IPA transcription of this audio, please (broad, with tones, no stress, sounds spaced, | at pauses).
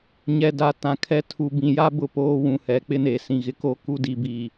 ɲ ɛ˨ d a˨˦ t ã˨ kʰ ɛ˦ tʰ u˨ b ĩ˨ j a˦ b ʊ˦ p oː˦ w ũ˨ h ɛ˨ k͡p ɪ˦ n eː˨ s ĩ˨ ɣ ɪ˦ k o˦ k u˦ d i˨ b iː˨